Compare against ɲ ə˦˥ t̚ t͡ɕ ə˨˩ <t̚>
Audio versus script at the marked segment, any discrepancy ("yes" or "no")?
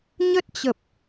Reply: yes